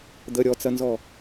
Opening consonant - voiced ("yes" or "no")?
yes